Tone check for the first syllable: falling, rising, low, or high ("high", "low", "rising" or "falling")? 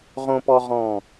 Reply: high